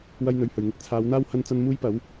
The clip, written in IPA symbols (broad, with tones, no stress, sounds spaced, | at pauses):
w ɐ˥ j n̪ ɵ˨ ɥ h ɵ˨˩ ɥ ŋ ɪ˧ k̚ t͡sʰ aː˨˧ w n̪ aː˥ w h ɐ˥ n t͡s ɐ˥ n m uː˥ j p ɐ˨˥ w